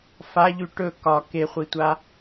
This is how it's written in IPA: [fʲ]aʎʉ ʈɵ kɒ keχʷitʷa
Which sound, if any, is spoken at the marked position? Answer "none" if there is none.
f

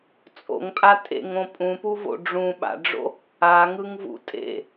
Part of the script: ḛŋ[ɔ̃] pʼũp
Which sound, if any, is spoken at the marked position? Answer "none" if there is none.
õ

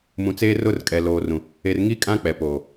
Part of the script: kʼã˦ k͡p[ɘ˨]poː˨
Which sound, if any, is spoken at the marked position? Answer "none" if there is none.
ɛ˨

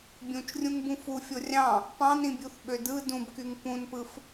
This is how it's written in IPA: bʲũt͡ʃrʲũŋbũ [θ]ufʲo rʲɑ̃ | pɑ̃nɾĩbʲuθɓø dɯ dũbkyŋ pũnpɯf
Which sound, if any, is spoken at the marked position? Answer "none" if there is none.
f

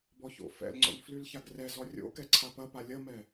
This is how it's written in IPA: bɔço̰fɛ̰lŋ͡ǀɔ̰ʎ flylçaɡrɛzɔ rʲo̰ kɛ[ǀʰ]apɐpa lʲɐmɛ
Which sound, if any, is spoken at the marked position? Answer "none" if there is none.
ǀʰ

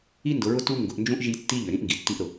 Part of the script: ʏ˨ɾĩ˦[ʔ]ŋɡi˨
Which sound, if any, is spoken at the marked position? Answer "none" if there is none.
ʔ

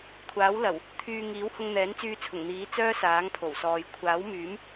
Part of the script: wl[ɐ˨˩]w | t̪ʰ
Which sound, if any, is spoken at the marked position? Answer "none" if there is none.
ɐ˨˩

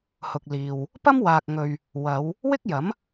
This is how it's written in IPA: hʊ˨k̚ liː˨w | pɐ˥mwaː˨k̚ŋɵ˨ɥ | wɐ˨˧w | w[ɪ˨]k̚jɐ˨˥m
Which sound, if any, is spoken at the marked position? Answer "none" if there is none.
ɪ˥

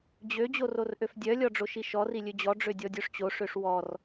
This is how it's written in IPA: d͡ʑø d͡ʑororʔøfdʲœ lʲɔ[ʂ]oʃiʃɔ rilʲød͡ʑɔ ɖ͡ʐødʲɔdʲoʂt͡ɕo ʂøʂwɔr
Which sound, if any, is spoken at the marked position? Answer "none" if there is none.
ɖ͡ʐ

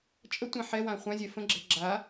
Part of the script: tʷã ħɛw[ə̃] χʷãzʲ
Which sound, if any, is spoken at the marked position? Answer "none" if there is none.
ã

